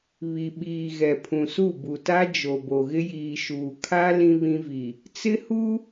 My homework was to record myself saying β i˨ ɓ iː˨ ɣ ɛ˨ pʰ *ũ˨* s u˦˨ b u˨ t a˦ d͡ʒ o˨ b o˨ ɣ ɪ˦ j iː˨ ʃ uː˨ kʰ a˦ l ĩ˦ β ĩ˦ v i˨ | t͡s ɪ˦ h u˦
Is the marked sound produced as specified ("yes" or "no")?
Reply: yes